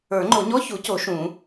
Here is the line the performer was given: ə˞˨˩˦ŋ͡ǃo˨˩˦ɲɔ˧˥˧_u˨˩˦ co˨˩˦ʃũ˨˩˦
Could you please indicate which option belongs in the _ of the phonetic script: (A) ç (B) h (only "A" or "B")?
A